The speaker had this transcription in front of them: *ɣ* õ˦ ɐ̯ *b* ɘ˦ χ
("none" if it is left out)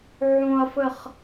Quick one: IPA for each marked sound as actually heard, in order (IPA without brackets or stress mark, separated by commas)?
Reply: ʕ, f